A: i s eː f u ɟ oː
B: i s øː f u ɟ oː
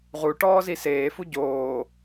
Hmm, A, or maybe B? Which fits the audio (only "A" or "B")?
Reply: A